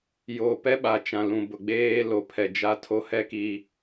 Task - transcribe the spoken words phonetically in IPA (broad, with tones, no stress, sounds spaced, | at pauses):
j oː˨ p ɛ˦ ɓ a˨ t͡ʃ ã˨ l ũ˨ b ʊ˨ ɡ͡b eː˦ l o˨˦ pʰ ɛ˨ d͡ʒ a˦ tʰ o˦ h ɛ˦ k i˨